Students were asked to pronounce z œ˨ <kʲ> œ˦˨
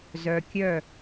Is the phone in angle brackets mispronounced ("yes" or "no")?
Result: no